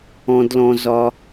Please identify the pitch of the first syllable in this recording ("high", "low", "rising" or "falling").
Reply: high